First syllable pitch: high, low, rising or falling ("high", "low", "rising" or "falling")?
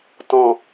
low